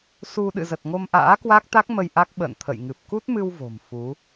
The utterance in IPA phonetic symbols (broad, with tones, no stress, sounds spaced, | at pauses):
s u˧ ɗ ɨ̰˧˨ z ə˨˩ t̚ ŋ o˧ m ʔ a̰ː˧˥ k w a˦˥ k̚ t̪ a˦˥ k̚ m ə˧ j ʔ a˦˥ k̚ ɓ ə̰ː˧˨ n t̪ʰ ə̰˧˨ j ŋ ɨ˨˩ p̚ k u˦˥ t̚ m ɨ˧ w v o̤˨˩ m f u˨˦